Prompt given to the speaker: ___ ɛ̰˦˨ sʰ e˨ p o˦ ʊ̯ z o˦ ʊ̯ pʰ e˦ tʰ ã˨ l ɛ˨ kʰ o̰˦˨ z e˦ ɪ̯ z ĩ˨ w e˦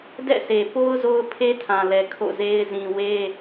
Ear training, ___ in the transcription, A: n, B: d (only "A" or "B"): B